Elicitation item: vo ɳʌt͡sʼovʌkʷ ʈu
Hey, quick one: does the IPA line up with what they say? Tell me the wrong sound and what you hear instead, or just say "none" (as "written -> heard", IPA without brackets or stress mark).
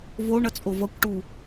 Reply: none